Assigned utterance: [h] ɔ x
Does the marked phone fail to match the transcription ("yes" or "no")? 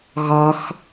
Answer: yes